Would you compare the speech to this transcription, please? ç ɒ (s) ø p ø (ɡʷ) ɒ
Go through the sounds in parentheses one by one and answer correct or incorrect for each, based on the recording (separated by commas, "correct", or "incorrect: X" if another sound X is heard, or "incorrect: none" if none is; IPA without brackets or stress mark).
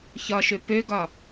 incorrect: ʃ, incorrect: ɡ